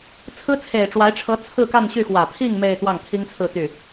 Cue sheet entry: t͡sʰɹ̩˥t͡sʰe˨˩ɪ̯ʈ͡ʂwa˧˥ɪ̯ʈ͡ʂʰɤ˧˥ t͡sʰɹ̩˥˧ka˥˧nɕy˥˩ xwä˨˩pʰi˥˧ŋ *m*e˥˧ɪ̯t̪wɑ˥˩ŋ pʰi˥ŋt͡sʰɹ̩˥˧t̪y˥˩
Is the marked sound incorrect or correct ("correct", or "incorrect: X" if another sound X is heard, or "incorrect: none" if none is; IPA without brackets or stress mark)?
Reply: correct